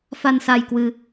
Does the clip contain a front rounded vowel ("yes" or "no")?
no